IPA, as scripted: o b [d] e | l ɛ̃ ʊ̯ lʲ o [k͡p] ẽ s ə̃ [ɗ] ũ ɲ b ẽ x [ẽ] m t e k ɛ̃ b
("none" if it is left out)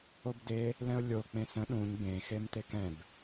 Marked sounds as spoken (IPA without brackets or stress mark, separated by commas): d, k͡p, ɗ, e